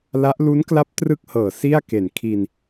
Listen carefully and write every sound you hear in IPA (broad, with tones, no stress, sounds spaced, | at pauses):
l a˦˥ ʔ l u˦˥ n k l a˦˥ p̚ t r ɯ˥˩ k̚ h ɤː˨˩ s i˥˩ a̯ k e˨˩ n kʰ i˧ n